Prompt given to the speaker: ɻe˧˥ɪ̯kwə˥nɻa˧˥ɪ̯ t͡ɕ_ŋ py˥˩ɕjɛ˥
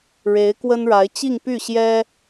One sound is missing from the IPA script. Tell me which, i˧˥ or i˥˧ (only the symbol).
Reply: i˥˧